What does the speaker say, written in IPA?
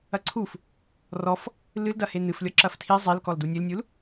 ɐ ǀʰ u f | r ɔ f | l ɨ l d ɐ h e n ɨ f lʲ ɔ ǁ ɐ f tʰ i zˤ i l k ɔ l d u nʲ ɨ l nʲ u l

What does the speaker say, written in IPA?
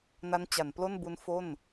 n a˦˥ n t͡ɕ a˩˦ n p l o˥˩ n b u˦˥ n f o˥˩ n

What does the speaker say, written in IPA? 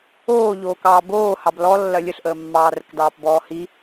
oː ʎ oː k ɑː b oː h ɑ b l ɔ lː ɐ lʲ ə ɬ ʔ əː mː ɑː r ə k d ɑː p b ɔː h i

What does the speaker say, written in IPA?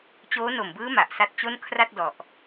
t͡ɕ oː˦˥ n o˨˩ m b ɯː˦˥ m a˨˩ ʔ s a˦˥ t̚ t͡ɕ o˥˩ n kʰ r a˥˩ t̚ d ɔ˨˩ ʔ

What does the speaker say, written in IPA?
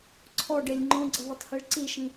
ǀʰ ɔ ɖ e lʲ ŋ͡ǃ õ ɡ͡ǀ ʌ v ɵ tˤ h i ɭ ǀ i ʃ ĩ

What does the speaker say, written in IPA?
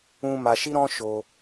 ũ˧ m a˧ ʃ i˦ ɾ ɔ̃˦ ʃ o˧

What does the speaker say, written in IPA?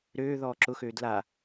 ɾ øː ð ɔː ǁ ʊ x øː d l a

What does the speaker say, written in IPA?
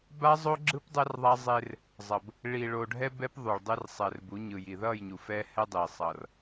b a˦ zˤ o˦ ɡ͡ǁ ɯ˦ p dˤ ɛ˦ r ðˤ a˦ zˤ e˦ r | zˤ ʌ˨ b | ɭ i˨ ɭ o˨ ɖʱ ɛ˦ b ɛ˦ p ðˤ u˨ ɭ dˤ e˦ r sˤ ɛ˨ r b u˨˦ ɲ ɯ˨ j i˨ ð ʌ˦˨ j ɲ u˨ f ɛ˦ h ɛ˦ dˤ i˨ sˤ ʌ˨ r

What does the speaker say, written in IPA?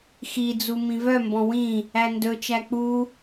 x i d͡z u m ĩ v œ m b ɔ̃ w ĩ | æ n d ɵ t͡ʃ æ k͡p u

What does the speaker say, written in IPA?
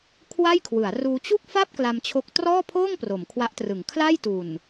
kʰ w a˥˩ j kʰ w ɯ˩˦ a̯ r uː˦˥ t͡ɕ u˥˩ k̚ f a˥˩ p̚ k l a˧ m t͡ɕʰ o˦˥ k̚ t r ɔː˥˩ pʰ oː˥˩ ŋ p r o˩˦ m kʰ w a˦˥ ʔ t r ɯ˩˦ ŋ kʰ l a˥˩ j t u˨˩ n

